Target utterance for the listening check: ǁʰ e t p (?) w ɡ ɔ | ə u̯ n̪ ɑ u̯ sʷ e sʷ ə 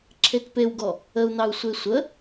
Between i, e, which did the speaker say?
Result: e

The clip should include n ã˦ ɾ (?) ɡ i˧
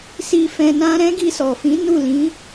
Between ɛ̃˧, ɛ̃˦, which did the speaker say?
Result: ɛ̃˦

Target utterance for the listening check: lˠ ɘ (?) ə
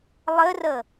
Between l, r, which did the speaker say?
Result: r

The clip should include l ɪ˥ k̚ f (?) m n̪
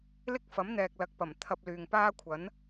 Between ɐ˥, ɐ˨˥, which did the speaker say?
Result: ɐ˨˥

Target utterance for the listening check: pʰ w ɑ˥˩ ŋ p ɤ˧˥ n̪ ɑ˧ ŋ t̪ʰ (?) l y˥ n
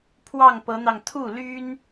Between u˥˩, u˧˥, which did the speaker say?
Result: u˥˩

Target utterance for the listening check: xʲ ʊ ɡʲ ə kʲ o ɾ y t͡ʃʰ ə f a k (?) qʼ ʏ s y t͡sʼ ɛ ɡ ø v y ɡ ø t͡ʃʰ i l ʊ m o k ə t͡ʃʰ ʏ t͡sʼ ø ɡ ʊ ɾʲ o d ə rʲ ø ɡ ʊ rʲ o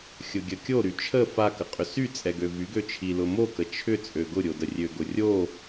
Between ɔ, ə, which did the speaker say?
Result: ə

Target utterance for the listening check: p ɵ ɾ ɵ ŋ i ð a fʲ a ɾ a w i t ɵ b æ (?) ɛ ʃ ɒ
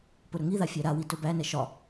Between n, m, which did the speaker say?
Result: n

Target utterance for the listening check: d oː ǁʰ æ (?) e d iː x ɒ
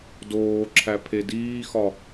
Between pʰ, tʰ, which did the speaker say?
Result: pʰ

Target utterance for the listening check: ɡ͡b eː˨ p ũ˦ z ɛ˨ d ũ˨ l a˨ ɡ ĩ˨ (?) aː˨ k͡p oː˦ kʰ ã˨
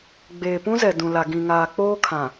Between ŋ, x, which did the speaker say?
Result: ŋ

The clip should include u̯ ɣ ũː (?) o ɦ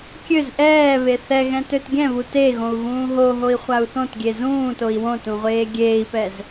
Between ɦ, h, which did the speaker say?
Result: ɦ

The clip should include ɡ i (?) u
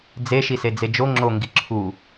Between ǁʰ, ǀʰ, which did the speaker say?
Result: ǁʰ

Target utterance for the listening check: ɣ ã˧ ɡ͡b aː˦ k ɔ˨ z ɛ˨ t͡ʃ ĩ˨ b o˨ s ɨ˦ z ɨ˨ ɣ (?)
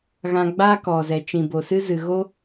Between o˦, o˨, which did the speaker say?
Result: o˦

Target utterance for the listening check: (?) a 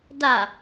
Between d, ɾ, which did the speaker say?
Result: d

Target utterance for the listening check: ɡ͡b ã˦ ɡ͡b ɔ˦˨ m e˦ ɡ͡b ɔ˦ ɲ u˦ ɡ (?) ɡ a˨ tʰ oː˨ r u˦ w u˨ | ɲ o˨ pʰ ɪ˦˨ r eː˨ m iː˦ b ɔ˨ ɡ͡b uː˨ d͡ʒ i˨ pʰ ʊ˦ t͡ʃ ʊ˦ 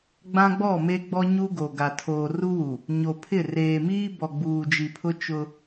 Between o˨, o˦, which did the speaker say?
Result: o˨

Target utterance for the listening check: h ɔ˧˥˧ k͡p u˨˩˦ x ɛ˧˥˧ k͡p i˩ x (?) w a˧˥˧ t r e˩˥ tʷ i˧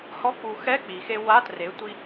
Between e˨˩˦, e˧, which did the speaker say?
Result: e˧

